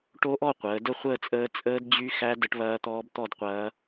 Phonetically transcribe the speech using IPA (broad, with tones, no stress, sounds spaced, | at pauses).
ʈ o˦˥ ʔ ɔ˥˧ qʷ əː˩˧ d ə˥˧ χʷ əː˥˧ t͡sʼ əː˦˥ t͡sʼ əː˦˥ d d͡ʑ y˦˥ x æ˦˥ d ə˦˥ ʈ β ɐː˦˥ t̪ ɔː˦˥ b t̪ ɔ˥˧ d qʷ ɐː˦˥